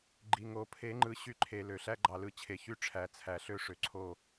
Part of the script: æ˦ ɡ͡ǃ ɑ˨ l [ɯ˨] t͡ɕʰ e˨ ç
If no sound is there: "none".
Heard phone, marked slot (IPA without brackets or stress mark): ɯ˦